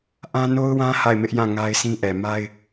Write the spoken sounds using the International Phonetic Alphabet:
ʔ ã˦ n o˦ ʊ̯ w ã˦ h a˦˨ ɪ̯ m ɪ˦ ʔ j ã˦˨ ŋ a˦ ɪ̯ sʰ ĩ˦ ʔ ɛ˨ m a˦ ɪ̯

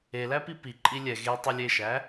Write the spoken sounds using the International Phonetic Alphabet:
e l æ p i p i ǃʼ i lʲ ɛ ɣ e tˤ u lʲ e ʃ æ

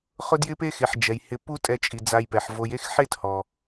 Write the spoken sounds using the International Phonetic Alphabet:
χ ʊ˦ d j ɪ˦ p e˦ x e˨ ħ d͡ʒ ɛ˨ j h ɪ˧ p u˦ tʼ ɛ˧ t͡ʃʼ i˨ d͡z a˧ j p ɛ˨ ħ v o˧ j e˦ x ħ e˦ t h ɔ˨

